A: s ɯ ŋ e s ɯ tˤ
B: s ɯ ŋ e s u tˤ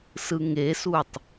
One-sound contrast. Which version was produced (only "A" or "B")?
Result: B